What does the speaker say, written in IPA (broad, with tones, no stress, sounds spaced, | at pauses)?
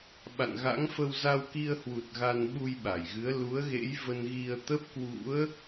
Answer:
ɓ a̰˧˨ n ɣ a̰˧˥ ŋ f ə˧ w z a˧ w k i˧ ə̯ h w u˨˩ t̚ ɣ a˧ n ɓ u˧ j ɓ a˧˩ j ɣ ɨ˨˦ ə̯ l u˨˦ ə̯ ɣ ḛ˧˥ j v ə˧ n ɣ i˧ ə̯ t̪ ə˦˥ p̚ k w ṵ˧˥ ə̯